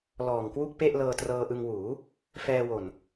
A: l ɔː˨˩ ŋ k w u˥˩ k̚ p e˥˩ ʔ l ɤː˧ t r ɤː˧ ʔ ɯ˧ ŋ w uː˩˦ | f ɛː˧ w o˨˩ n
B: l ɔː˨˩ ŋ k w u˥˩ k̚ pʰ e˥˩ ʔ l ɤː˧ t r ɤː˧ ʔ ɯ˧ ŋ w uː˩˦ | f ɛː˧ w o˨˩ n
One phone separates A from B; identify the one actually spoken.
A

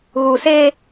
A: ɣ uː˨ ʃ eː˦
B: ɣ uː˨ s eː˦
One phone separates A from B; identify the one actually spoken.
B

